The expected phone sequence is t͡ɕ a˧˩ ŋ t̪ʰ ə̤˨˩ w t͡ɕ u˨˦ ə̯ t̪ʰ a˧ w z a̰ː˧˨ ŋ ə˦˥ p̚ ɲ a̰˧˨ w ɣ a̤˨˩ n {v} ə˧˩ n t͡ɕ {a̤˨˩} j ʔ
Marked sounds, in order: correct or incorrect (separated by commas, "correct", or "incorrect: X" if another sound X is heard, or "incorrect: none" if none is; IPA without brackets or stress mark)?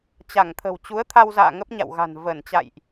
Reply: correct, incorrect: a̰˧˨